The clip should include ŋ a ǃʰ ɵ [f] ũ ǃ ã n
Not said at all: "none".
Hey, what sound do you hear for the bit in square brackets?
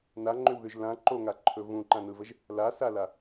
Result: v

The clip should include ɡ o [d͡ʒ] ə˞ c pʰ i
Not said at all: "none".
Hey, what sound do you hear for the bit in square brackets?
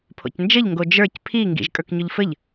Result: d͡ʒ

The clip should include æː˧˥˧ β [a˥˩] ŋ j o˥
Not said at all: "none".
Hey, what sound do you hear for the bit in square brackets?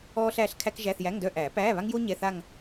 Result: a˥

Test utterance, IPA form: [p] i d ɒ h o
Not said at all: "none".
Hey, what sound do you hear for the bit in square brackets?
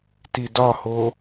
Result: t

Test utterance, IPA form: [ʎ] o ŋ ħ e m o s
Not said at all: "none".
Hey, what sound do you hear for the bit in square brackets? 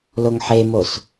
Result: l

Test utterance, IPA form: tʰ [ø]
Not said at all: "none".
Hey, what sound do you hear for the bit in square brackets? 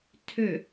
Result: ø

